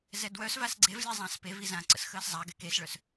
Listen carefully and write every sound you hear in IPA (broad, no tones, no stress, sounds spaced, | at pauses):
z ɛ d w œ s v a s ɡ͡ǀ e v lʲ a zˤ ã s p e v i z ã ǀ ə̰ s x əː s zˤ a ɡ ɛ k e s ɭ œ s